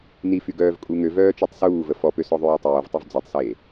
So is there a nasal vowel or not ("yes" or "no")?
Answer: no